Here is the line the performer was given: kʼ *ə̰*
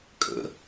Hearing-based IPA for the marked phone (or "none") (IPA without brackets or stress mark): ə̰